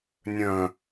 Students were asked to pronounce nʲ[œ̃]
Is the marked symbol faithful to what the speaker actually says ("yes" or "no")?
yes